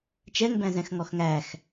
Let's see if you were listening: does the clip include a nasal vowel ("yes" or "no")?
yes